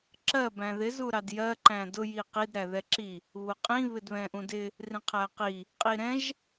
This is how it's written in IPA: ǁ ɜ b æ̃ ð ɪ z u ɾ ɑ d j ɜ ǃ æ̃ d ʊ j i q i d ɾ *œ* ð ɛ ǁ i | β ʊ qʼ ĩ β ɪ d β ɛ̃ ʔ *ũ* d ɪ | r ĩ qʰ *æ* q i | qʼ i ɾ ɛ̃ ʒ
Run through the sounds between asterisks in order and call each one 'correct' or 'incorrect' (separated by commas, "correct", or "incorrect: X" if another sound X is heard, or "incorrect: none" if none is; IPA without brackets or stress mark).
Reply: incorrect: æ, correct, correct